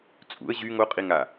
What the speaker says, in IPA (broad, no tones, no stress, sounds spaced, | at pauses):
t͡sʼ ṵ ə̯ ʑ y ŋ o qʼ i ŋ a